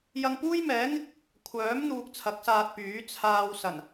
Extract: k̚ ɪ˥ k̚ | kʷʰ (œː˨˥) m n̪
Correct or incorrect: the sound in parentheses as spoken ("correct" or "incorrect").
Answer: correct